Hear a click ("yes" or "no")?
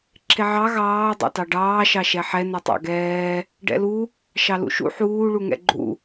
yes